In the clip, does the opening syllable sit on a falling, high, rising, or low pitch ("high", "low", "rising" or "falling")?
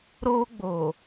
high